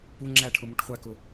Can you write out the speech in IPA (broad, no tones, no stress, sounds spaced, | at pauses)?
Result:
p u ŋ͡ǁ æ ʈʰ ʊ m u ʈ χʷ æ k ʊ